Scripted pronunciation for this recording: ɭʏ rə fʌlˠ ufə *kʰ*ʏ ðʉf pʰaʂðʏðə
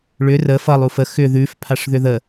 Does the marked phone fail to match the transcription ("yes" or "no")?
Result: yes